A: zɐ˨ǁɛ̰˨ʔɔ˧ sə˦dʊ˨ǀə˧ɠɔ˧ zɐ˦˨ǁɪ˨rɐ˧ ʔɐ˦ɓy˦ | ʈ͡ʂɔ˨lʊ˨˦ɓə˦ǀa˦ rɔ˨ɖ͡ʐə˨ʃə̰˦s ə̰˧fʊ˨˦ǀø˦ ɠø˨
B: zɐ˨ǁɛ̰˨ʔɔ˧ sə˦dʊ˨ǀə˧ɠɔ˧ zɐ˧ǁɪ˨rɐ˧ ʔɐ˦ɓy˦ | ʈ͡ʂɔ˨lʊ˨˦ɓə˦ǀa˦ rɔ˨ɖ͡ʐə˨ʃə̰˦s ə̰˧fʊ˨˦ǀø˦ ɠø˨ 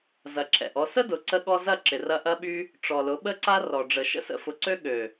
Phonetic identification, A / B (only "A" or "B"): A